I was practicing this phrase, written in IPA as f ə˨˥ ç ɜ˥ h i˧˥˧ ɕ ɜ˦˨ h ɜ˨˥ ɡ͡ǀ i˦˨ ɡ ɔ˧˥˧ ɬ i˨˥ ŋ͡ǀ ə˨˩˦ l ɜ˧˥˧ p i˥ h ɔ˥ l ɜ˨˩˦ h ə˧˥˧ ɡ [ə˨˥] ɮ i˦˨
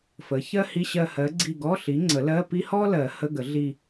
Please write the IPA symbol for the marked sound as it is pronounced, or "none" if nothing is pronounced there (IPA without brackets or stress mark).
ə˨˩˦